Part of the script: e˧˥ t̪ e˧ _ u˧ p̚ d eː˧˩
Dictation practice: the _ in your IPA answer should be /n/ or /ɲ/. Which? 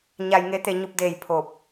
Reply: ɲ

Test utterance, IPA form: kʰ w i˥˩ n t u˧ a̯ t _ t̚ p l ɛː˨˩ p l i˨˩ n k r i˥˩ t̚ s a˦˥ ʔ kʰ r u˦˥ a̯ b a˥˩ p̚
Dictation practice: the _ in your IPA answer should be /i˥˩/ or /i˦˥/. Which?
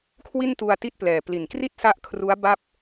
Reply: i˦˥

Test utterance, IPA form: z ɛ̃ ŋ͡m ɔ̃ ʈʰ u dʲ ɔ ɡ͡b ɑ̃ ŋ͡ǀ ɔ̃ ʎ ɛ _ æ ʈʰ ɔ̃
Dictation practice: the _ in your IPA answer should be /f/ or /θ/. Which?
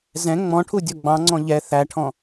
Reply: θ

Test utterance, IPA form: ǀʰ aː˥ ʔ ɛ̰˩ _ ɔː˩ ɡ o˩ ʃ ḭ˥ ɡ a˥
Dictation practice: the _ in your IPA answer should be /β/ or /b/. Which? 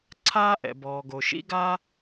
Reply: b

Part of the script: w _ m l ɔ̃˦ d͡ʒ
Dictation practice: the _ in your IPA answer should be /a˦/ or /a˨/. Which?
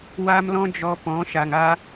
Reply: a˦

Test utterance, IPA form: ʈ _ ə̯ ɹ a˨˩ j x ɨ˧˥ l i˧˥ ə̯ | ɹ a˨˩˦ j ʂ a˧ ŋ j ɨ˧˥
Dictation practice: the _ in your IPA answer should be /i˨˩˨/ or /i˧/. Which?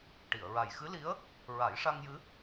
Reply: i˨˩˨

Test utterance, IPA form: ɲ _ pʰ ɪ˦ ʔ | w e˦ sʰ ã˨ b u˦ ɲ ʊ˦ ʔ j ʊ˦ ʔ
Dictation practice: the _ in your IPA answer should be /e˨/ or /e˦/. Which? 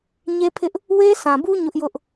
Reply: e˦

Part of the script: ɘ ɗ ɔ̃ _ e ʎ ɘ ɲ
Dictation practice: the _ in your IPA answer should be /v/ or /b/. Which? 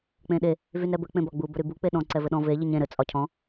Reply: v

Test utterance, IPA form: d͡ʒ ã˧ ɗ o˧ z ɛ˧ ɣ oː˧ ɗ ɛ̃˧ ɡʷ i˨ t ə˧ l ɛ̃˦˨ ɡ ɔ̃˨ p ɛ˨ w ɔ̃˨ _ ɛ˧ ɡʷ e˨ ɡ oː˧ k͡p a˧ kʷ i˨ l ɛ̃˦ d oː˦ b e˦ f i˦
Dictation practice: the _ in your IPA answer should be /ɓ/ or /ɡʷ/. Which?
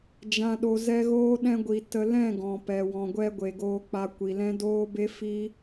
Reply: ɡʷ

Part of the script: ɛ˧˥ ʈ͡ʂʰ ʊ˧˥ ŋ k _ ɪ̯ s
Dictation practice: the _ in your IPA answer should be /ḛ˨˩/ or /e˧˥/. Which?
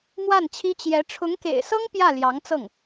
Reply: ḛ˨˩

